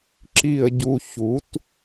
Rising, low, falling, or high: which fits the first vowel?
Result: falling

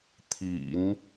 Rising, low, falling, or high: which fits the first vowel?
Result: low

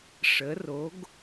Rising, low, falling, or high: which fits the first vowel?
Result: rising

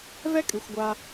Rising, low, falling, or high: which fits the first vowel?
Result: high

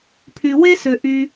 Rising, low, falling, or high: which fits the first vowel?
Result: low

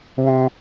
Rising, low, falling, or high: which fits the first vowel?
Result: high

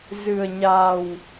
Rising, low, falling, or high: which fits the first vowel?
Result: low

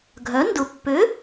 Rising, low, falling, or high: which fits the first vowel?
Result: rising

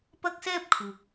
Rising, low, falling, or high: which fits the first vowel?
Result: high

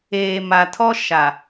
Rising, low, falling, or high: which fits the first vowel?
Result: low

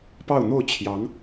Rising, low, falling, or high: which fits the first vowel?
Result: falling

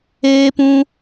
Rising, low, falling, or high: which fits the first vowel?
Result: high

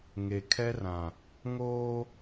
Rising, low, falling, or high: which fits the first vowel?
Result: low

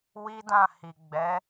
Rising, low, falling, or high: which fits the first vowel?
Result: high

